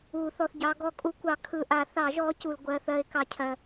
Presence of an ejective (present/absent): present